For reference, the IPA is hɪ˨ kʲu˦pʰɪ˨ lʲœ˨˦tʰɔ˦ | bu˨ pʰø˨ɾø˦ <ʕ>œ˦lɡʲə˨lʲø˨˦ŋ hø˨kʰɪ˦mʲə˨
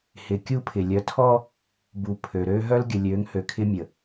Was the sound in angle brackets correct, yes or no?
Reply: no